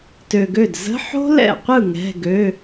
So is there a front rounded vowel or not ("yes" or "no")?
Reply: yes